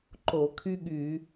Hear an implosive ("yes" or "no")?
yes